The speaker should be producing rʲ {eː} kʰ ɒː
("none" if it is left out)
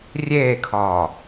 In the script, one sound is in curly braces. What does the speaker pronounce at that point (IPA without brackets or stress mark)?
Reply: eː